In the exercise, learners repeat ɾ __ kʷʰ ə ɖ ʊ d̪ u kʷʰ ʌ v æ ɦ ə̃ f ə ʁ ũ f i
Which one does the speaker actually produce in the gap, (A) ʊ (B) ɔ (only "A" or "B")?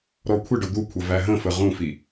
B